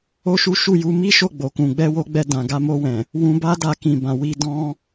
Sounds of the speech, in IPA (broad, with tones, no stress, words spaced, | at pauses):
o˦ʃu˦ ʃu˦˨ju˧ mi˦ʃo˦˨ɡ͡bo˨kũ˨ ɡ͡bɛ˧wo˧ɡ͡bɛ˧ dã˨ɡa˧mo˧wɛ̃˨ | wũ˧ba˦da˧kĩ˨ bã˨wi˧ dɔ̃˦